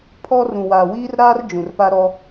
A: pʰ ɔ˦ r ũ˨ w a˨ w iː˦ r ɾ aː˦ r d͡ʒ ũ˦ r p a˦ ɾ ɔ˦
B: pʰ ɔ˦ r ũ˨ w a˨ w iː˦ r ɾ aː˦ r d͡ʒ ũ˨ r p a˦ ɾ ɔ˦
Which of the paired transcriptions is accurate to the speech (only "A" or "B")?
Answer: B